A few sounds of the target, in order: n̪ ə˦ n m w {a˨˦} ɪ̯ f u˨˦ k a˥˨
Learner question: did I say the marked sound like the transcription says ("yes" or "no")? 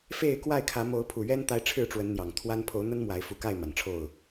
yes